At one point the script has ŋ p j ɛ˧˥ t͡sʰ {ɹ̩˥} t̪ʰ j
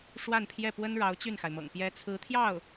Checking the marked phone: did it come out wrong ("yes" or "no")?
yes